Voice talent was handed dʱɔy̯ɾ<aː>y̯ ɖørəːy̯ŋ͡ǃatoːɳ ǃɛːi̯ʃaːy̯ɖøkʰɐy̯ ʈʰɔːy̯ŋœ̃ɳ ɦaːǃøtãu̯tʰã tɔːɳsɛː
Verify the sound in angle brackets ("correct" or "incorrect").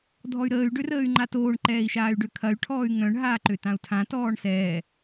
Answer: incorrect